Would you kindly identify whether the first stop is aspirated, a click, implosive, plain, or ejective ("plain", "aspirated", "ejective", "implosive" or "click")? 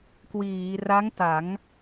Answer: plain